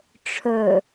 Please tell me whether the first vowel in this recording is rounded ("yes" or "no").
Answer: yes